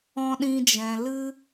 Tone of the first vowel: high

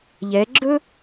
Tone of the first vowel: rising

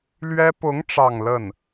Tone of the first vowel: high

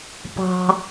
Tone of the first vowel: high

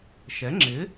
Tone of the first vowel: rising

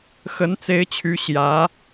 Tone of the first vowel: rising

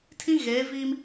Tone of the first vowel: high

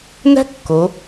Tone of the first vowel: high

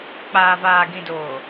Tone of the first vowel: low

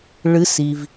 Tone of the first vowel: rising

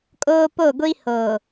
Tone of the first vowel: high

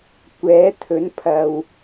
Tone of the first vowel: rising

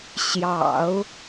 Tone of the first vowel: low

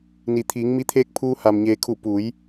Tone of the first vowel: low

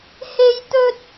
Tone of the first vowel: high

